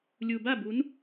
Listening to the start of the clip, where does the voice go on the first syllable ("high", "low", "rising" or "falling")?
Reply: low